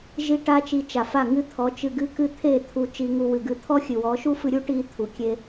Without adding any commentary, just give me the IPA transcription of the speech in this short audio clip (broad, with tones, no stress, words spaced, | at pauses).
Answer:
ʒi˧ ʈa˧t͡ʃi˨ t͡ʃa˨fa˦˨ŋɨ˦ t̪ʰɔ˨˦t͡ʃɨ˧ɡɨ˦ kɨ˦˨t̪ʰe˦˨t̪ʰu˧ t͡ʃi˧ŋu˧ wɨ˨ɡɨ˧ t̪ʰɔ˦xʲɨ˨wɔ˨˦ ʃu˦fɨ˧ɾʲu˦ ʈi˧t̪ʰu˨kʲe˧